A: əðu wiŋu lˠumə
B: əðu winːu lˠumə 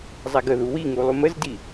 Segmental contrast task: A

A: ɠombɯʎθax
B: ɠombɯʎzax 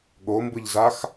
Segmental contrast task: B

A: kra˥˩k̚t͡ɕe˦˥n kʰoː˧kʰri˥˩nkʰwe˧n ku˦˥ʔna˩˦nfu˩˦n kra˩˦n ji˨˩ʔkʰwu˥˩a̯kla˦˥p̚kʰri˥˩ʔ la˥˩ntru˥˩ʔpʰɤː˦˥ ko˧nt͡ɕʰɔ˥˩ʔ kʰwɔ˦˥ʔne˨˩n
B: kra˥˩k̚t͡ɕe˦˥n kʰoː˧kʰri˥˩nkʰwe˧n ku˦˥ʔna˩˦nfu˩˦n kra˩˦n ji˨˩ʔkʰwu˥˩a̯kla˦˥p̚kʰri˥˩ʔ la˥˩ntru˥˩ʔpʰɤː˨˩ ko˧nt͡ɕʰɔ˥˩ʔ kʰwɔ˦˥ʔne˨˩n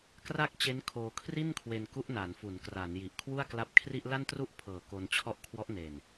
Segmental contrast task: B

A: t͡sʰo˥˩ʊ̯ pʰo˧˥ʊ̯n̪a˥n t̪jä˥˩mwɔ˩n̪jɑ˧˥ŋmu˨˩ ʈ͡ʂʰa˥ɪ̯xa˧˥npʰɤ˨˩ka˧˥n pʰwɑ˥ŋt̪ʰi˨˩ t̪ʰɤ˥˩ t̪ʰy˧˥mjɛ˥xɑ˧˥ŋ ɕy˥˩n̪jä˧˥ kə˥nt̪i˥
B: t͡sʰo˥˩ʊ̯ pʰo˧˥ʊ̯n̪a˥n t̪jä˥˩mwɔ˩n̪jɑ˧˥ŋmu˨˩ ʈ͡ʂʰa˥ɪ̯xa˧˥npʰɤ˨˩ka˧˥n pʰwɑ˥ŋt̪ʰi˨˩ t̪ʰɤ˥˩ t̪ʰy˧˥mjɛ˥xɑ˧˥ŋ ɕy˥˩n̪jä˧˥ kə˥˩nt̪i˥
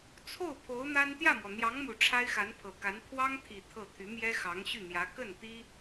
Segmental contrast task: B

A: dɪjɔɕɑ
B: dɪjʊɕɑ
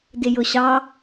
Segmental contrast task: B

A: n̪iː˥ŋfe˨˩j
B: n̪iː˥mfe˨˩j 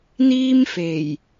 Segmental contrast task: B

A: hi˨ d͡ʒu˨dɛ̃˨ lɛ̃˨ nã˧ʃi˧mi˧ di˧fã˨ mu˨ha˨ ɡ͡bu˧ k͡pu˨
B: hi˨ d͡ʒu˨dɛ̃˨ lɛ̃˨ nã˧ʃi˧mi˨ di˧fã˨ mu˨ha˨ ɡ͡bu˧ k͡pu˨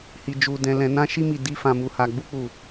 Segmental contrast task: B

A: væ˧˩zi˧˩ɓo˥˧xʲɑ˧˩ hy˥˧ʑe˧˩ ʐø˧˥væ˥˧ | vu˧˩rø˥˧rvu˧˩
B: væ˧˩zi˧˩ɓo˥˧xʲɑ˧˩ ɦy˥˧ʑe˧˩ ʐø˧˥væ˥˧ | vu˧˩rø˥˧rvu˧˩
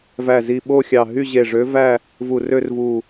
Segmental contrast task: B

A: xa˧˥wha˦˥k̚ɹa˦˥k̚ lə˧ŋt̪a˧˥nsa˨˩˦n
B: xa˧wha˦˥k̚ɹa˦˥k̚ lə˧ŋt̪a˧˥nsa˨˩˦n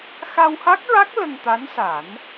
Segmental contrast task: B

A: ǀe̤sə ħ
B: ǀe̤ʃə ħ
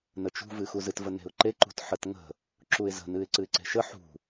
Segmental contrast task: B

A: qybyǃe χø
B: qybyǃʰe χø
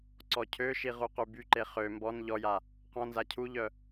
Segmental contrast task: A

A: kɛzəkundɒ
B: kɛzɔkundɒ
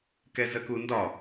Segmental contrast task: A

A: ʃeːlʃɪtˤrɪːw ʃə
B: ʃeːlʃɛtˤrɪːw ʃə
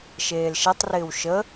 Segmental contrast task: B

